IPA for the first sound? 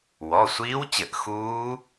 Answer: w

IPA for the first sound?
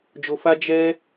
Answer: d͡ʒ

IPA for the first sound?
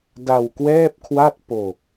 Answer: d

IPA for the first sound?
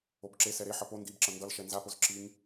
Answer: o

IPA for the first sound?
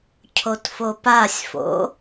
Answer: cʰ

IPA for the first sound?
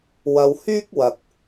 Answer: w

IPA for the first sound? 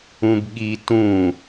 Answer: ũ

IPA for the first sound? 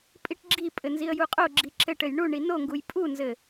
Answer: pʼ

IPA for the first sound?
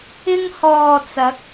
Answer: ɪ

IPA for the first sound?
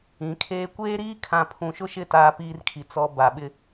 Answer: ĩ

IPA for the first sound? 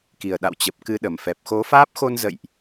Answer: k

